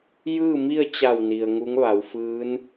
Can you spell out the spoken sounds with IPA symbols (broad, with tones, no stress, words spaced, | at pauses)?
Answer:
jɯː˥˨mi˥˨ə̯t͡ɕa˧˩w ni˩ə̯ŋu˧˥ŋʋa˩˧wfɯː˧˥n